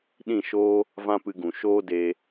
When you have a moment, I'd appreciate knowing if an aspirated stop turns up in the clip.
no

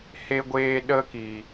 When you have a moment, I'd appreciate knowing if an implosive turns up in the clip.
yes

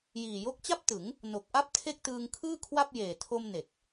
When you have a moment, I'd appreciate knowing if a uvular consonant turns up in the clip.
no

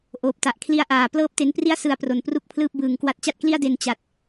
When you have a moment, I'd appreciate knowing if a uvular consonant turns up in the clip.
no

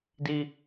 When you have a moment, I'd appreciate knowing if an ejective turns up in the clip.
no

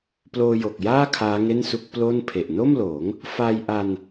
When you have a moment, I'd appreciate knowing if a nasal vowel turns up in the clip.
no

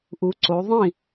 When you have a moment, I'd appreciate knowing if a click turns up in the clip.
yes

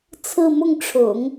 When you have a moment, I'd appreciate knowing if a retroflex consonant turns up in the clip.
yes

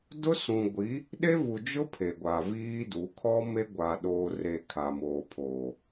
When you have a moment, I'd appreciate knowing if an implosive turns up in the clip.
yes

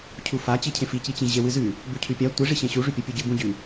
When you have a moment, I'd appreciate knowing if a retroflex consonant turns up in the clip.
yes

